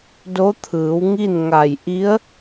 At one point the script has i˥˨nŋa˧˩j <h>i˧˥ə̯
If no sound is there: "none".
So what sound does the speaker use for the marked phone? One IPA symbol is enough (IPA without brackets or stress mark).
ʔ